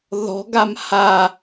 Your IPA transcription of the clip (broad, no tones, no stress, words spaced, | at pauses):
ðɔ̤ɡam ha